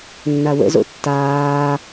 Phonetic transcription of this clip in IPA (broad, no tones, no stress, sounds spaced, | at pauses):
nː a w ə̰ z o̰ tː aː